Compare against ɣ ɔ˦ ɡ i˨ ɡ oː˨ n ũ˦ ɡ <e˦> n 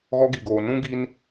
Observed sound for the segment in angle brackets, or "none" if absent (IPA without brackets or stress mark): i˦